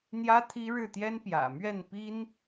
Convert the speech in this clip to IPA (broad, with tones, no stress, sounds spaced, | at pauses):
n̪ j ä˥ t̪ʰ i˥ ɻ ɻ̩˥˩ t̪ j ɛ˥ n p j ä̰˨˩ m ɥ ɛ˥˩ n p i˥ n